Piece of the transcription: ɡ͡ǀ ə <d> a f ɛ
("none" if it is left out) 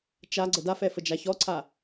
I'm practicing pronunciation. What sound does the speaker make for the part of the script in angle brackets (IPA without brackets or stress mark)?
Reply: d